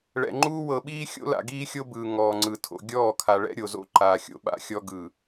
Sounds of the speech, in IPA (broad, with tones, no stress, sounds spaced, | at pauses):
ɭ ɛ̰˨ ŋ͡ǃ uː˦ w ɤ˨ ɓ iː˦ xʲ o̰˦ l a̰˨ ɡ iː˦ xʲ o˦ b ɯː˨ ŋ ɔː˨ ŋ͡ǀ ɯ˨ tʰ o̰˨ ɡʲ ɔː˦˨ kʰ a˨ ɭ ɛ̰˦ ɾʲ o˨ z o̰˦ ǃ aː˨ xʲ o̰˦ ɓ a̰˦ xʲ ɔ˦ ɡ ɯ˨